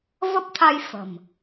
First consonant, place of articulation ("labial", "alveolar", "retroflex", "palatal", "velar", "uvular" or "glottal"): labial